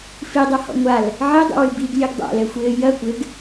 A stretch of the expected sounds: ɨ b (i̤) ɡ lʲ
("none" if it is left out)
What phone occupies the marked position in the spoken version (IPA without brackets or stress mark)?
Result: i